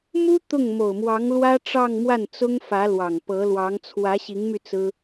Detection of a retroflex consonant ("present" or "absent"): present